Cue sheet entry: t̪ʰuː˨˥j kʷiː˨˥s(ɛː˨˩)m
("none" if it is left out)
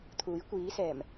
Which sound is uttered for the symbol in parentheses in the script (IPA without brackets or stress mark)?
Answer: ɛː˨˩